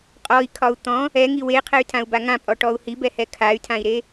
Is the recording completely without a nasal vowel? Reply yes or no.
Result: no